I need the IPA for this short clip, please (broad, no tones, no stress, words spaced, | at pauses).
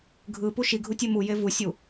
ɡʱɯpu ʃiɡʱutʲe muje vusʲu